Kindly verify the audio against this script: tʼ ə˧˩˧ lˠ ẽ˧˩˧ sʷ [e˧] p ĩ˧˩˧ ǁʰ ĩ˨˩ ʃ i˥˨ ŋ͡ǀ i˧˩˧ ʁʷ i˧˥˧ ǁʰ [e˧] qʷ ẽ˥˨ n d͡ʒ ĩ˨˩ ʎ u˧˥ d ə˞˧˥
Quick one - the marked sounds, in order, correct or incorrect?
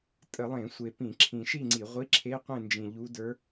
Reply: incorrect, incorrect

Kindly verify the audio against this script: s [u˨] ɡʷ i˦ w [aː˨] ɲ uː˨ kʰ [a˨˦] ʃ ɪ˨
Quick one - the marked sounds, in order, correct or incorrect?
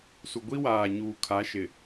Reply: correct, correct, correct

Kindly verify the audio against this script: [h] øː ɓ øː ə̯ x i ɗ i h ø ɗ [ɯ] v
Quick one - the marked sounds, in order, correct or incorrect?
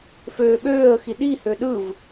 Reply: incorrect, correct

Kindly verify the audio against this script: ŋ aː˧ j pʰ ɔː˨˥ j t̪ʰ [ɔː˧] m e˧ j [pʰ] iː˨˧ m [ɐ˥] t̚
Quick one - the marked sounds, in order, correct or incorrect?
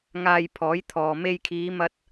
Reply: correct, incorrect, incorrect

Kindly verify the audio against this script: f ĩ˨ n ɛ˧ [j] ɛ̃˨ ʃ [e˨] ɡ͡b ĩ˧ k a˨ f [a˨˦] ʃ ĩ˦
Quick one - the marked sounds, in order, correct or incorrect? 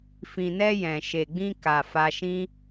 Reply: correct, correct, incorrect

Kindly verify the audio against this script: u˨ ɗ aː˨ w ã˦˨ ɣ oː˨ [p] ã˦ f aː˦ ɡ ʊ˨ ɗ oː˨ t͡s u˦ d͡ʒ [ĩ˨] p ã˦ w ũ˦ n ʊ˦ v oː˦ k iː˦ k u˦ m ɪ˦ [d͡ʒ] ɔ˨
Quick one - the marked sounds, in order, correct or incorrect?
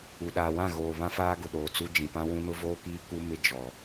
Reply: incorrect, correct, correct

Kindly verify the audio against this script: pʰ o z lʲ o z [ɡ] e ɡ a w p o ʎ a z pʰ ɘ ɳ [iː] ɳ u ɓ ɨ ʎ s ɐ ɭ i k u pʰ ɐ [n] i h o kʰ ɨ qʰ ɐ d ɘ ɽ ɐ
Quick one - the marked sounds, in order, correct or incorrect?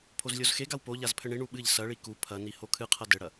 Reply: incorrect, incorrect, correct

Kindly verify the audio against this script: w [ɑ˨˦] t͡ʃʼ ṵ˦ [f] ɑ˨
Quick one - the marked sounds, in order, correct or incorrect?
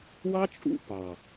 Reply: incorrect, incorrect

